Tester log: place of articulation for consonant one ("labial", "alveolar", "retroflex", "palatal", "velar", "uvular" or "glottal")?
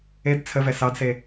alveolar